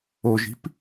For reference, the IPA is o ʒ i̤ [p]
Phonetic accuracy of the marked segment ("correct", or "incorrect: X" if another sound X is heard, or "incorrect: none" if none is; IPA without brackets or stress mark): correct